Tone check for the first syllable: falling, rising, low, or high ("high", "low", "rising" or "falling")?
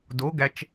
rising